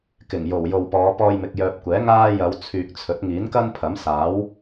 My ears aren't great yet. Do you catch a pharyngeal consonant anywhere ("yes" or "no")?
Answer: no